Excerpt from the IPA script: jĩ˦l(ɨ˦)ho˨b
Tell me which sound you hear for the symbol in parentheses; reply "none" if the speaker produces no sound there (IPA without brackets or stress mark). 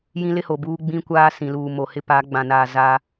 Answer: ɪ˦